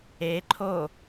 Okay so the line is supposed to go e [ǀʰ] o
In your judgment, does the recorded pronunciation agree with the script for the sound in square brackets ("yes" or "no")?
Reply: no